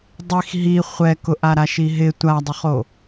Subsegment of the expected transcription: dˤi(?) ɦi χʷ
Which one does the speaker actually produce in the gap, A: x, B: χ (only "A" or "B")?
A